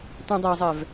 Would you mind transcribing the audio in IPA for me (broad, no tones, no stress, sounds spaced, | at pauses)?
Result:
t ũ dˤ ɛ zˤ ɛ v